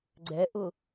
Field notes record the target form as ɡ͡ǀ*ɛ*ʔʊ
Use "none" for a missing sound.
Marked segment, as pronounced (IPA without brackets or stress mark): ɛ